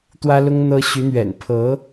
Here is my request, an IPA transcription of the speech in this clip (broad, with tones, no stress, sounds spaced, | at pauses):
t̪ w ä˥ l ʊ˥ ŋ n̪ ɤ˥ ɕ y˧˥ n̪ ɥ ɛ̰˨˩ n pʰ ɤ˧˥